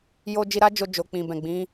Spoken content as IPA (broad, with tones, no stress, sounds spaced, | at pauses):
j o˧ d͡ʒ i˧ ɾ a˦ d͡ʒ o˧ d͡ʒ o˨ k͡p ĩ˨ b ɛ̃˨ ɡ͡b ĩ˨˦